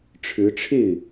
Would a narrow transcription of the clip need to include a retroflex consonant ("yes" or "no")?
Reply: yes